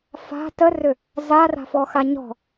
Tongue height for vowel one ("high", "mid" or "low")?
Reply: low